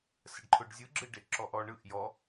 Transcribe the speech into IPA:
s ə ɖ ǃʰ ʊ ɖ zʲ ɯ ɡ͡ǁ ɯ ɖ e ʔ ǁ ɔ ʔ ɔ ɳ ɯ ʔ j ɔ

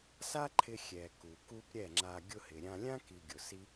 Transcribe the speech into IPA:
s a˦ ǃʰ ɪ˧ xʲ ɛ˨ k u˨ k u˦ p ɾʲ ɛ˦˨ ŋ͡ǁ a˧ ɡʲ ʊ˧ h ɪ˨ ɾʲ ã˧ lʲ ã˦ k i˧ ɡʲ ʊ˨ s i˦

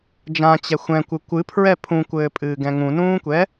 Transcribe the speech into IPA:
d͡ʒ ã t͡ɕ ɛ xʷ ɛ̃ kʷ ɨ kʷ ɨ pʰ ɹ ɛ pʰ ũ kʷ ɘː pʼ ɨː ɡ ɛ̃ ŋ ũ n ũː kʷ ɛ

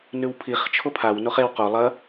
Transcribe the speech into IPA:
n ʉ w pʰ i χ t͡ʃʰ o pʰ a w n o χ e w q o lˠ ɐ

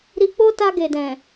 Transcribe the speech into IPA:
ɾ i˧ k͡p o˦ t a˧ ɡ e˨ d ɛ̃˨

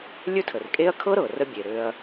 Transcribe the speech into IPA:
lʲ ɵ˥ tʰ ə˩ r kʼ e˥ ɐ̯ kʰ ɤ˥ ɾ ɤ˩ r ə˦ bʲ e˩ ɾ ø˨ ɐ̯

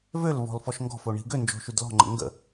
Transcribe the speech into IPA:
v ø l v ɔ̤ l f ɔ ʃ ŋ ɡ ɔ̤ f o ɳ i̤ ɡ ø n d͡ʒ o̤ ʃ y d l ɔ̤ ŋ͡ǃ ə̰ ŋ ɡ ə̰

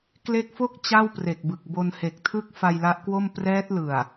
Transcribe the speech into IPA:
k l e˦˥ k̚ f o˥˩ k̚ t͡ɕ a˥˩ w p r e˨˩ k̚ b ɯ˨˩ k̚ b o˧ n h e˨˩ k̚ tʰ ɯ˥˩ k̚ f a˧ j l a˦˥ ʔ k w o˥˩ m p r ɛː˦˥ t̚ l ɯ˨˩ a̯

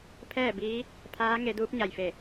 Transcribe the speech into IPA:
pʰ ɛː˥˨ b iː˧˥ | pʰ aː˧˥ ŋ e˩˧ d uː˧˥ p̚ ɲ a˩ j f e˧˩

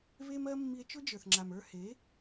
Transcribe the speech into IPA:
β e˦ m ɜ˦ mː i˧ e̯ t͡ʃ ʊ˦ d͡ʒ ə˞˨ θ ŋ͡ǁ a˨ m ə˞˧ h e˨˦

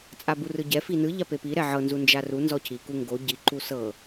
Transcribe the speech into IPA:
t͡sʼ a b u r ɯ ɟ ɛ f i n ɯ ʎ a p e p i ɾ ɛ ʕ ɤ n z u n d͡ʒ a r u n z ɔ cʰ i k u ŋ ɡ o ɟ i ǃ u s ɤ

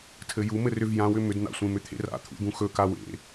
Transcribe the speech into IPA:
tʰ ɘ j u m ɘ r ʏ v j ã w ʏ m ʏ d n̪ a̰ sʷ ẽ m ʏ t̪ʰ ḛ r a̰ t̪ʰ ṵ d̪ ũ x ɵ k a w ḛ

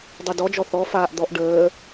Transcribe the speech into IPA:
dˤ i d ɔ d͡ʒ ɔ θ ɔ f aː ʔ d̪ ɔ ʔ ɖ əː

